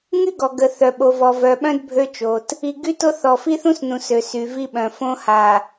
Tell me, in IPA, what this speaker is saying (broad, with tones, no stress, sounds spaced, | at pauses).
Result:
ŋ y˦ ɡ ɔ˨ ɡ ə˨ θ œ˨ ɓ o˨ v ɔ˨ v œ˨ ɓ œ̃˦ d bʱ ø˦ t͡ʃ o˨ t | i˨ ɡ y˦ t o˦ θ ɔ˨ f i˦ θ ũ˦ s n ũ˨ s ø˨ s y˨ v i˦ ɓ œ̃˨ f õ˦ h a˨